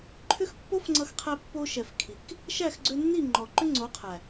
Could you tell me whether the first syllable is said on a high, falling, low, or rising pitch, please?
high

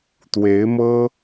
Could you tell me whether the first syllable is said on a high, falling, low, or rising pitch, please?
rising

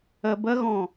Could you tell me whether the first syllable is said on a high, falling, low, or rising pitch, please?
low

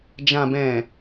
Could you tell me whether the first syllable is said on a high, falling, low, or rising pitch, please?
low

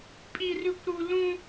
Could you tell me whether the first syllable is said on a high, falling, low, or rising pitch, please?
high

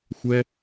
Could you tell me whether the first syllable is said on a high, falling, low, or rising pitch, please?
high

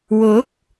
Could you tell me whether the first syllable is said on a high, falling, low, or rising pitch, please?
rising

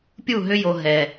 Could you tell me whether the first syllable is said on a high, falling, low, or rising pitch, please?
falling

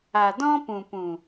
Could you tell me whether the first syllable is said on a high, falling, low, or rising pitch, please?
low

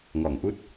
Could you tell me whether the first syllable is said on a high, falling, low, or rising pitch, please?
low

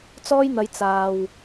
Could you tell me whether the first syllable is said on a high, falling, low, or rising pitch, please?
high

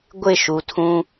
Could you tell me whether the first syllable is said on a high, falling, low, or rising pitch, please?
falling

